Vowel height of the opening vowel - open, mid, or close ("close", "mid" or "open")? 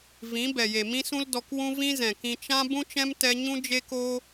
close